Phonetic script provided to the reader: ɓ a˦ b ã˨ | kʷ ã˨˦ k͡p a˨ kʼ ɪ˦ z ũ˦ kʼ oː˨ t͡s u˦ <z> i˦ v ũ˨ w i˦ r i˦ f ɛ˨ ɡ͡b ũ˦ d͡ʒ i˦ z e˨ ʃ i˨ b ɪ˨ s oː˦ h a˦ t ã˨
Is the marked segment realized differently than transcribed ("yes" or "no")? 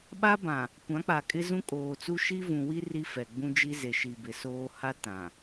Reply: yes